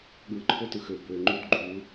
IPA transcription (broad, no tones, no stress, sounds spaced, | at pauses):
ɠ ɯ ǃʰ o t ɯ x ø b ø ŋ͡ǃ y d ɡ͡ǃ u